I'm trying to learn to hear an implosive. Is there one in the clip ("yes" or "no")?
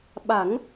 yes